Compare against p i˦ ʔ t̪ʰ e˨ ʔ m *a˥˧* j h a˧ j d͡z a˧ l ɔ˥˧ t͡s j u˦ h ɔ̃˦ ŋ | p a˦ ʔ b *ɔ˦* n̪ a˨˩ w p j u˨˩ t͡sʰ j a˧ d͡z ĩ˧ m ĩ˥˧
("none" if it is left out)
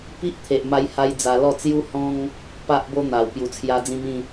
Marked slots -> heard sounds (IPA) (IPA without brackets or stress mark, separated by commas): a˧, o˦